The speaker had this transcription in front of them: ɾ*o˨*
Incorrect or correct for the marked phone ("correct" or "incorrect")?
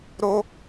incorrect